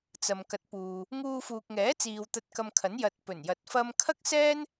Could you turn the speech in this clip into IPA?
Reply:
t͡s ɐ˨ m k ɐ˨˥ t̚ p uː˨ | ŋ uː˧ f uː˨ k̚ ŋ ɛː˨˥ t͡s iː˨ w t̪ ɐ˧ t̚ k ɐ˧ m kʰ ɐ˨˥ n j ɐ˨ t̚ p ɵ˨˩ n j ɐ˨ t̚ f ɐ˧ m kʰ ɐ˥ k̚ s ɛː˥ n

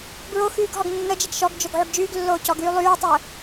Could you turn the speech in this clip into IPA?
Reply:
b ɹ o x yː ɡ ɦ ɔ ɡ nː ə d͡ʒ ə ɡ ʃ ɔ ɡ d͡ʒ o ɡ ʕ y ɡ d͡ʒ yː ɡ lː oː c ɔ ɡ yː lˠ yː tˤ əː

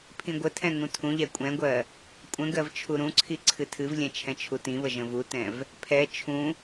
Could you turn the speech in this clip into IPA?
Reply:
pʰ ĩ ɡʷ ə tʰ ɛ̃ ŋ ũ tʰ ũ ʎ ɛ kʷʼ ɛ̃ ɡʷ ɜ | kʷʼ ə̃ ɡ ɜ v t͡ʃʰ u ɾ ũ ǀʰ i ǀʰ ɨ tʰ ɨ v lʲ ɛ̃ t͡ʃʰ ɛ̃ t͡ʃʰ u t ĩ β ə ʒ ə̃ v u t ɛ̃ v | pʰ ɛ t͡ʃʰ ũ

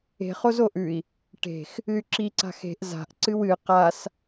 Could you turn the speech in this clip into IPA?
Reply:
e̤ χ o z o ʔ ʉ i̯ | ʈ e̤ x | ɨ y̯ ǁ i ǀ a̤ x e̤ ʔ z a̤ ʔ ǀ ɨ w ɨ q a s

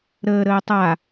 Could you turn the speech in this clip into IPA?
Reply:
ɾ əː ɾ əː tˤ a

